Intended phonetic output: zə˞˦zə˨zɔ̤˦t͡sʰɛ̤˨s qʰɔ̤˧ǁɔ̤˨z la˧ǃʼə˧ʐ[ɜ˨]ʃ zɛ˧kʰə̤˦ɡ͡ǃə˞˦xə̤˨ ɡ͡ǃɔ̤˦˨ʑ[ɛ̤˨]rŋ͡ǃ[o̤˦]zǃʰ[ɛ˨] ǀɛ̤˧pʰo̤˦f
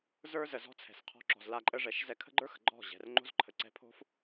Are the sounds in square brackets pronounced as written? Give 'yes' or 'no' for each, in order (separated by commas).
no, yes, yes, no